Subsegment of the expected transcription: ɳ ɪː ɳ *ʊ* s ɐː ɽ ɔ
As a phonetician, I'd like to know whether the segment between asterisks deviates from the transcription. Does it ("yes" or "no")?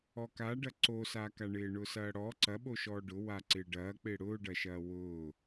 no